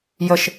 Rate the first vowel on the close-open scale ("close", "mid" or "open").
mid